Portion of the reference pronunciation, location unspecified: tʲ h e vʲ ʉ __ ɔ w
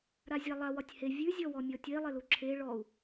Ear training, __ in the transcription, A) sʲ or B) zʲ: B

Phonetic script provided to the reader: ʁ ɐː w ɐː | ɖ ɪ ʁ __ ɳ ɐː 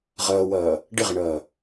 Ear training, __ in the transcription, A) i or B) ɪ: B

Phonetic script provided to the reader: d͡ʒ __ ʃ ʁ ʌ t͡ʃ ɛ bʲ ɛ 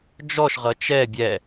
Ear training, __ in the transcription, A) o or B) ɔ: B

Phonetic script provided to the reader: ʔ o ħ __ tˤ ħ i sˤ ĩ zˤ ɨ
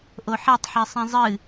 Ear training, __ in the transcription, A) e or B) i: B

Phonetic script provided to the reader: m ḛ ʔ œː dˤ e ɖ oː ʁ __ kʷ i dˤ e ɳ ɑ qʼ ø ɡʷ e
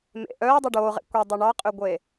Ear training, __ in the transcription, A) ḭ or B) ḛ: B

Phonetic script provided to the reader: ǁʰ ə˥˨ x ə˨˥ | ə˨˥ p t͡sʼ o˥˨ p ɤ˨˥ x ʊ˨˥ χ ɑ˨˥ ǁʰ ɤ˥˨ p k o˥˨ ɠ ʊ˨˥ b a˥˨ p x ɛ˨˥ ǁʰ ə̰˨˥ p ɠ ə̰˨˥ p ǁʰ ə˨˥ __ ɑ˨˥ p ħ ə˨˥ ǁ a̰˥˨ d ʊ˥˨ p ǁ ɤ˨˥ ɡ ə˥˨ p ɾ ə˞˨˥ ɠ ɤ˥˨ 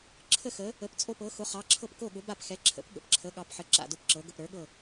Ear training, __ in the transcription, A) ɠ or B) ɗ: A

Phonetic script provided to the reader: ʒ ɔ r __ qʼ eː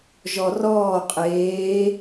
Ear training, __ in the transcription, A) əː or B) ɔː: B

